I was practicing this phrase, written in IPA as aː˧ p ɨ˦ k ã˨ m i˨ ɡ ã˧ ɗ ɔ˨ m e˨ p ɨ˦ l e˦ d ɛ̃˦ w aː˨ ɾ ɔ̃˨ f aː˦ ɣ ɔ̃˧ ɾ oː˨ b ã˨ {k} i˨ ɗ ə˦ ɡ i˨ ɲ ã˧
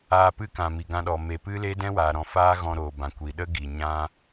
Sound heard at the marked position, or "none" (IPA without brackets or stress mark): kʷ